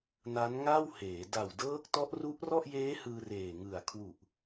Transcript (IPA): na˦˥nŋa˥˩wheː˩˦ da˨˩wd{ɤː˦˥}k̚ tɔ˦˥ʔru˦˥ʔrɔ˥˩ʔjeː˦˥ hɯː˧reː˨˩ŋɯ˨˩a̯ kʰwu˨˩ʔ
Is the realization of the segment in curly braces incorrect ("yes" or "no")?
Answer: no